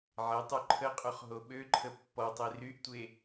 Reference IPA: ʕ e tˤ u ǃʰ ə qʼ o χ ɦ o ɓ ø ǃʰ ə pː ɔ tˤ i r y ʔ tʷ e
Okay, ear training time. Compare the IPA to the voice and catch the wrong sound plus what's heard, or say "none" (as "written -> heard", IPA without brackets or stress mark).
none